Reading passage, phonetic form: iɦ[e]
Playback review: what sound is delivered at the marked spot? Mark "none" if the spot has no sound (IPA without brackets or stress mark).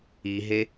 e